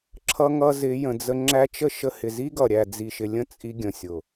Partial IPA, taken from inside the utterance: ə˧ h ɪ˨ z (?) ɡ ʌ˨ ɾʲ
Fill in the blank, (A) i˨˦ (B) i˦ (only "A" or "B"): B